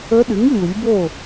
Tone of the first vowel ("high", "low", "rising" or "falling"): rising